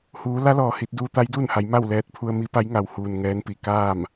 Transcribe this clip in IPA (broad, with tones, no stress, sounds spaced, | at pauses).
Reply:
h uː˩˧ l a˧˥ l ɔː˩ h i˧ t̚ d uː˧ t̪ a˧˥ j d uː˥˨ n h a˩˧ j m a˥˨ w l ɛː˧ t̚ pʰ u˧ ə̯ m i˧˥ p a˧˥ j ŋ a˩ w h uː˩ n ŋ ɛː˧˥ n p i˩ k aː˥˨ m